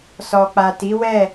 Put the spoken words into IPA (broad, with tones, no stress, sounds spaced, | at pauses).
s ɔ˨ k͡p a˨ t i˨˦ w ɛ˦˨